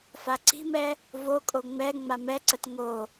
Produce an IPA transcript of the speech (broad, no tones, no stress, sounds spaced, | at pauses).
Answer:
f a ǀ i̤ m ɛ | v o kʼ o ŋ͡m ɛ ŋ͡m a m ɛ ǀ ə t ŋ o